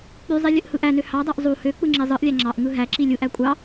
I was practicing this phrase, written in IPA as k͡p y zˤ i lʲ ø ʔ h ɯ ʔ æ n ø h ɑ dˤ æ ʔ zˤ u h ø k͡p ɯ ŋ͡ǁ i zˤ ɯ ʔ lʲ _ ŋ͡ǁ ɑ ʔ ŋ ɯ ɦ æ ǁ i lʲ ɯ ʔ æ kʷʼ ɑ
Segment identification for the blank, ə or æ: æ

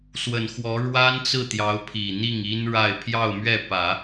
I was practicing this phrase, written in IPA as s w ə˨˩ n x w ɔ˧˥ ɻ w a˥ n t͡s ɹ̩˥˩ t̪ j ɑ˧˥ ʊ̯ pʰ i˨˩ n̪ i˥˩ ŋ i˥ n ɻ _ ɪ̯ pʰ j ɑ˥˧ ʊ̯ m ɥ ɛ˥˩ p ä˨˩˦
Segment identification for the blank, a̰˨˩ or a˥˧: a˥˧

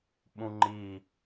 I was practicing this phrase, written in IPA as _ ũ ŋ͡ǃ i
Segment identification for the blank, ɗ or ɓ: ɓ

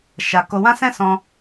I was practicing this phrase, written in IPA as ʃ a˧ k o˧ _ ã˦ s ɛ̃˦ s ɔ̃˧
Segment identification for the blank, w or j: w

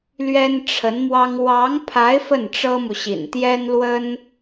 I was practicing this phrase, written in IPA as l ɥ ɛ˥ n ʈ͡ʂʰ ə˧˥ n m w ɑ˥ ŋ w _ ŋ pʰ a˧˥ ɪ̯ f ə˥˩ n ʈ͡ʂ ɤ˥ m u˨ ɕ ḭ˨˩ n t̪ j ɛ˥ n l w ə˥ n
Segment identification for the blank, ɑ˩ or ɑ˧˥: ɑ˧˥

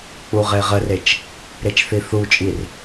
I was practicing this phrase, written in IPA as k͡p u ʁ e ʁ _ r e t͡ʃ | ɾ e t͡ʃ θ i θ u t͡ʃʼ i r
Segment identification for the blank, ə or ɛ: ə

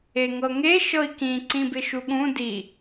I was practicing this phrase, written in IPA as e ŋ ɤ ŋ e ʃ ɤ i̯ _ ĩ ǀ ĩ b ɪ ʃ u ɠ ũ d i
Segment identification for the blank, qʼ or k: k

